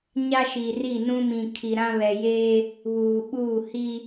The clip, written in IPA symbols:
ɲ a˦ ʃ i˨ r i˦˨ n ũ˦ m ĩ˨ kʰ i˨ ɾ ã˦ β ɛ˨ j eː˦ | β uː˨ ɓ uː˦˨ h i˦

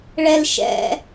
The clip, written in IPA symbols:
ɭ ɛ l ʃ ɛ̰

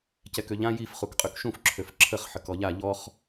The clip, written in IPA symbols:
c ɛ k ø ʎ ã j i f χ u k qʼ y k ʃ ũ f ǁʰ ø f ǁʰ ə χ ħ ə k ɔ ʎ a ʎ ɔ χ

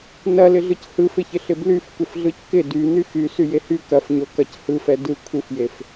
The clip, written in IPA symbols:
n ɐ l ɪ ɮ ɯ c h ɯ f ɪ ç ɪ ɬ ɪ b l y f kʷ ɪ f ɮ ɯ c k ɪ d y n y x y s y j e h y k ɐ f ɲ o k ɐ c h ɯ f ɛ d ɯ kʷʰ ɯ f j e f

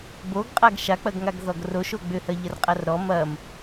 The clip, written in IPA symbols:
b o ɡ qʼ a ɡ ʃ a k͡p ɐ ɡ ŋ a ɡ ð ɔ ɡ r o ʃ o ɡ͡b ʏ h ɜ ʎ ɐ r qʼ a r ɾ ɔ m ɐ m

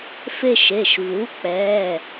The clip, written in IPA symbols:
f e˧ ʃ e˩˧˩ ʃ v u˩˥ k͡p ɛ˩˧˩

